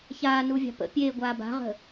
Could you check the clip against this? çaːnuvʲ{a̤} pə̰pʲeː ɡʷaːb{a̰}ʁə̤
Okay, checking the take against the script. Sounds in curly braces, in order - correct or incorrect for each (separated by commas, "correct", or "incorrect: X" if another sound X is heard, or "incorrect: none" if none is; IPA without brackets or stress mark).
incorrect: ɑ̤, incorrect: a̤